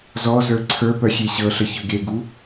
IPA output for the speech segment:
z ɔ z ə˞ ǀʰ ə˞ p œ xʲ e ɕ ɤ ɬ ə ç ɤ ɡ e ɡ u

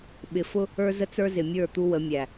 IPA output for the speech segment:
ɓ ɪ˨ f ʊ˦ | ə˞˦ z ə˦ t͡s ə˞˦ z ɪ˨ mʲ ə˞˦˨ t̪ u˦ w ə˨˦ mʲ æ˨

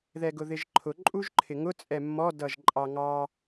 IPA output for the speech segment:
ð ɛ ɡ ʊ ð ɪ ʒ ǃʰ ʊ ǃʼ u ʒ ǃʰ ɪ ŋ ʊ t͡sʼ ɛ mː ɔ d ʌ ʒ ǃʼ ɑ ŋ ɑ

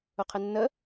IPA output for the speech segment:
ʊ qʰ ɘ nː ə

